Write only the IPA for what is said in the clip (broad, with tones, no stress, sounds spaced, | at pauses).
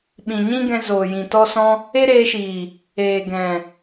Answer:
ɓ ĩ˨ ɲ ĩ˦ ɡ ɛ̃˧ z oː˨ j ĩ˨ t ɔ˧ s ɔ̃˧ | e˦ ɾ eː˧ ʃ iː˨ | eː˨ ɡ ɛ̃˨